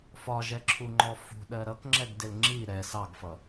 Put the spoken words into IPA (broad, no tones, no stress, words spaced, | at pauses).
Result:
fɒʒɛ ǁʰuŋ͡ǃɔfṳɗɜ ɾʌkŋ͡ǁɛɡ dɪlŋ͡ǁi ɾɛ sɑɡfʌ